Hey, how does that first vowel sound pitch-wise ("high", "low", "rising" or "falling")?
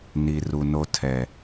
low